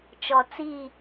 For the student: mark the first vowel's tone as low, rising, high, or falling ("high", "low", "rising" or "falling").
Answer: low